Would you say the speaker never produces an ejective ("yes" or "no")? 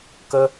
yes